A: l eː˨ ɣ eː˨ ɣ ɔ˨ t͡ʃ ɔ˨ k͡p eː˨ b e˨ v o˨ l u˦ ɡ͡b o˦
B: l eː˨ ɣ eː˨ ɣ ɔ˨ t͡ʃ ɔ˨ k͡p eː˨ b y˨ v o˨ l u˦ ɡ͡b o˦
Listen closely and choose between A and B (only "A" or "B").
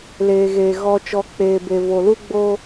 A